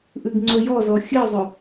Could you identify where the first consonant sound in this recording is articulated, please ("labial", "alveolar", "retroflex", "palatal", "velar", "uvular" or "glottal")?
glottal